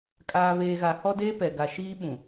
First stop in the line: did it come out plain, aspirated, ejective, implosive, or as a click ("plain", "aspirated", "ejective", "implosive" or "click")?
ejective